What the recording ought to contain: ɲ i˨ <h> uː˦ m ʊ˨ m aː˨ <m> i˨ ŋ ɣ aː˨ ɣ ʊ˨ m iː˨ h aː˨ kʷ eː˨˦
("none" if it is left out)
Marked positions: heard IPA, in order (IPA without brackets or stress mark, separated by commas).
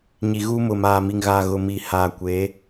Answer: ɣ, m